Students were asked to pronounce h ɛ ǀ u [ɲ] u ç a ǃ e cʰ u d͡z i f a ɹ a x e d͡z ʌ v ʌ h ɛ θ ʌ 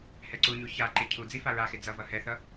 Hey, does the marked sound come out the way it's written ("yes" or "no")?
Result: yes